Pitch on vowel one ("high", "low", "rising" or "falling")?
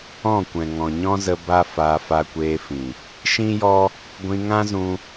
falling